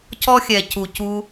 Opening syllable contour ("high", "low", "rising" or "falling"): high